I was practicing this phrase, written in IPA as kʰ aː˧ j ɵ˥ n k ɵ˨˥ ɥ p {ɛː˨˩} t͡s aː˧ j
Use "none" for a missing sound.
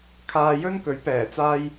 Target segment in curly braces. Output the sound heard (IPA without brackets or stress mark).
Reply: ɛː˨˩